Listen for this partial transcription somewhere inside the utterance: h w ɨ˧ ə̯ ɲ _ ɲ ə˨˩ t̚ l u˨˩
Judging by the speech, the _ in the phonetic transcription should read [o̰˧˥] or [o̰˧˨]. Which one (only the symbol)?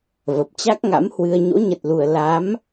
o̰˧˥